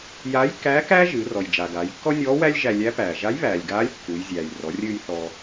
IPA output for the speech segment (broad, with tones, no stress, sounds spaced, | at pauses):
j aː˧˥ j kː æː˧˥ k æː˥ ʒ ɨː˩˧ r ɔ˩ j d͡ʒ a˩ ɡ aː˩˧ j kː ɔ˥ nʲ ɔː˧˥ w æ˥ lʲ ʒ æ˧ lʲ æ˧˥ p æː˩ ʒ a˧˥ j β æː˩ lʲ ɡ aː˧˥ lʲ kː u˩˧ j zʲ æː˩ j r ɔ˩˧ rʲ ɨː˧ j θ ɔ˩